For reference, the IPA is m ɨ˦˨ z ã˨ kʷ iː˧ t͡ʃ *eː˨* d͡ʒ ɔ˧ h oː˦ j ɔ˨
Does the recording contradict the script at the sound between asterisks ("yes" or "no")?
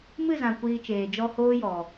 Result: no